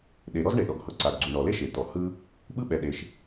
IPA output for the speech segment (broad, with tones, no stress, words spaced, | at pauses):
ɗe˩ɾɔ˥z ɳe˩ɗɔ˩ɡhɤ˩ ǀa˩ɡɡ͡ǀu˩ ɳɔ˩le˥ ʃe˩t̪ɔ˩ hɯ˥ | ɓɯ˥ɓɛ˩ ɗe˩ʃ